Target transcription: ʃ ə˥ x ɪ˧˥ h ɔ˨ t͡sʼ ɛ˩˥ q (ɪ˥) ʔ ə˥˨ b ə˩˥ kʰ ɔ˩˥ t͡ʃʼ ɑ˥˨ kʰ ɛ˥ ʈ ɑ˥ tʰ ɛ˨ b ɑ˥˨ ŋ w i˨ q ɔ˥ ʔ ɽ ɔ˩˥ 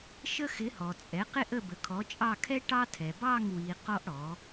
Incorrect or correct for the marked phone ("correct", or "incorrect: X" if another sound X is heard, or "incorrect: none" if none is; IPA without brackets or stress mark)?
correct